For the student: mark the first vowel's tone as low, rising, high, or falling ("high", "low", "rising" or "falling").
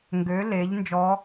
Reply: rising